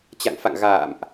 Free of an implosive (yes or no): yes